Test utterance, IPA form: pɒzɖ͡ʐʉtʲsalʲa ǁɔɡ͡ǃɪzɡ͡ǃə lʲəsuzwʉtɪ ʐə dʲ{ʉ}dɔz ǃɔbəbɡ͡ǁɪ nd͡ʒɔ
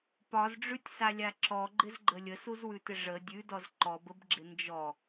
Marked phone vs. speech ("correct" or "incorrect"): correct